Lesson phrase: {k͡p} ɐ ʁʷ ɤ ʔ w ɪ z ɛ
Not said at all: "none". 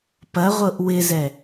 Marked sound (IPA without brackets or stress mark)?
p